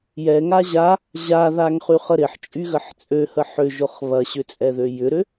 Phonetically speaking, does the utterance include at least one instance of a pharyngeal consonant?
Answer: yes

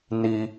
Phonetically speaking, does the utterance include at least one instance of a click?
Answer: no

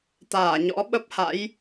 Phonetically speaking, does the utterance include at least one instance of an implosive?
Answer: yes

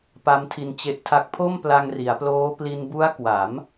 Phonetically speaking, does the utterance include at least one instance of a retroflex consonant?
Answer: no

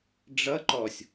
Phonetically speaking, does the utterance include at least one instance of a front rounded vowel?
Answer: no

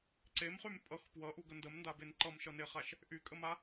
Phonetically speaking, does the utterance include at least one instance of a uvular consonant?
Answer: yes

